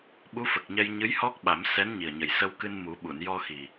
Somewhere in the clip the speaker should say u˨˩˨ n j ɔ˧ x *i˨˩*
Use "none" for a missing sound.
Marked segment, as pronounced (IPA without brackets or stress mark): i˨˩